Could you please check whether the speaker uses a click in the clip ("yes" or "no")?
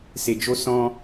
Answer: no